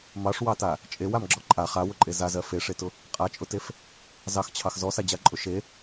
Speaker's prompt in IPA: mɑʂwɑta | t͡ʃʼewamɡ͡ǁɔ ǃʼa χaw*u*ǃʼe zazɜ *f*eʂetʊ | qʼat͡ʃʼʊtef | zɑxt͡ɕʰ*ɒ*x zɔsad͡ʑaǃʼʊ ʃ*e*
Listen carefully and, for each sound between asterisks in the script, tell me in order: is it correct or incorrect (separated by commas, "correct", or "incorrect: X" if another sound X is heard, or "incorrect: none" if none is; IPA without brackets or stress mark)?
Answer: incorrect: ʊ, correct, incorrect: ɑ, correct